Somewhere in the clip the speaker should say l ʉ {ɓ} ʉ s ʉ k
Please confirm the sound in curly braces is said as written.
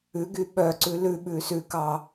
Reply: yes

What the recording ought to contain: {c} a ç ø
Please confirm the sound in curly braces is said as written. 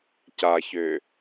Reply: yes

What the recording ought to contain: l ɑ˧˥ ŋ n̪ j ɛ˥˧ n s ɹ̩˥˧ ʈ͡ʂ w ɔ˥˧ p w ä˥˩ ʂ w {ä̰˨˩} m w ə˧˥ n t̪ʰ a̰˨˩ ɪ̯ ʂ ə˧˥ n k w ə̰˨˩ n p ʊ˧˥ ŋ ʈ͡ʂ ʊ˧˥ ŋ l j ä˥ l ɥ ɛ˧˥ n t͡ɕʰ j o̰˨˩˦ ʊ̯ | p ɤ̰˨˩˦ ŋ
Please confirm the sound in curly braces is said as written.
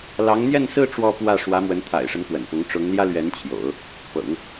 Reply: no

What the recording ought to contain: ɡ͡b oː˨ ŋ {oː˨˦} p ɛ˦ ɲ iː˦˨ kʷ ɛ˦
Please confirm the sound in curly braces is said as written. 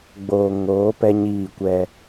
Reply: yes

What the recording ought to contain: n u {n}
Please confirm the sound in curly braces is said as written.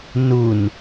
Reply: yes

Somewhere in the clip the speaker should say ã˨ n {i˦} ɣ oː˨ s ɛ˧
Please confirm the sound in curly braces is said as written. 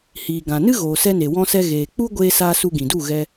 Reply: no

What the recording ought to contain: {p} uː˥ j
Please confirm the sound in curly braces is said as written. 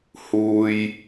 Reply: no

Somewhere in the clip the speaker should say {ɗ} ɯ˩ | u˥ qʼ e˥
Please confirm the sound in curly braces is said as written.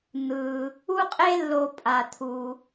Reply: no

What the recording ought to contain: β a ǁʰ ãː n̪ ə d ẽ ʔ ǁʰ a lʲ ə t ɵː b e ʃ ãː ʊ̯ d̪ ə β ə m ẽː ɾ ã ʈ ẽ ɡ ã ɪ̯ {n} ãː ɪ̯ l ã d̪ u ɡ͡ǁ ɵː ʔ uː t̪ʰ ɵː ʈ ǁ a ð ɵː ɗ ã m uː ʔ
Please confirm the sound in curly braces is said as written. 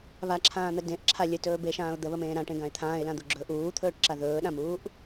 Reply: no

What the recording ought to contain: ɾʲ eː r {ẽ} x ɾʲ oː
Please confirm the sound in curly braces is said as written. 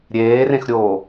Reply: yes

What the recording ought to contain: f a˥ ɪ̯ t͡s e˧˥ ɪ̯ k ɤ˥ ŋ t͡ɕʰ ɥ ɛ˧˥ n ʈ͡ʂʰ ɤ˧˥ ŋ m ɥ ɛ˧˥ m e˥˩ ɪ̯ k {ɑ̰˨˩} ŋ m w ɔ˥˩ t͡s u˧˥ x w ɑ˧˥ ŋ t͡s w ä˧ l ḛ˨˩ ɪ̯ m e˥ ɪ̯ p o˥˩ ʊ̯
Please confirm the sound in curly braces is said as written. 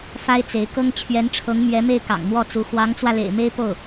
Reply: yes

